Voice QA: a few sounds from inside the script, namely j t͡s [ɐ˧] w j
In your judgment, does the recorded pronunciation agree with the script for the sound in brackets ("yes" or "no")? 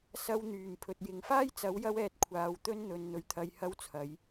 no